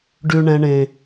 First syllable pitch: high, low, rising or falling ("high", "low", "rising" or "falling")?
high